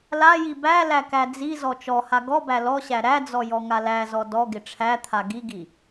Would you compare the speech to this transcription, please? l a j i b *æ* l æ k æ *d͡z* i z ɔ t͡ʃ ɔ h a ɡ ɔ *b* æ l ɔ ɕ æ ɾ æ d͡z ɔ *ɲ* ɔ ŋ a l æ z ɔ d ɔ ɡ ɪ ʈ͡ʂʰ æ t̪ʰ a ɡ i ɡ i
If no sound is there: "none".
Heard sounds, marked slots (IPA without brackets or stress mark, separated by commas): æ, d͡z, b, j